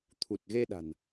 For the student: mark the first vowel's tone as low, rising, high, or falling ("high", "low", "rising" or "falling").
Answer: low